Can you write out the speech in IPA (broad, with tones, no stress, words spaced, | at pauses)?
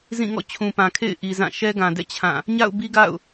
zĩ˦˨ ŋɔ̰˦˨t͡ɕʰũ˨pã˨ kʰḛ˦˨ɪ̯ʔi˨ zã˦˨ ʃɛ˦ɡã˨dɛ̰˦˨ t͡ɕʰã˦˨ | ɲa̰˦˨ʊ̯ bi˦ɡa̰˦˨ʊ̯